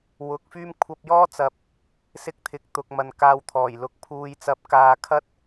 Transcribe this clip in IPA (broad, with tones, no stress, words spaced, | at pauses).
wʊ˨˥k̚fyː˥m kʷʰɐ˧p̚jɔː˥t͡sɐ˨p̚ | sɪ˥k̚t̪ʰɪ˨˥k̚ t̪ʊ˨k̚ mɐ˨nkaː˧wt̪ʰɔː˨˩jlʊ˧k̚ pʰuː˨j t͡sɐ˨˥p̚kaː˨kʰɐ˥t̚